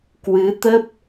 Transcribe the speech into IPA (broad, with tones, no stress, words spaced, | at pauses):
kwɨ˨˦t̪ə˦˥p̚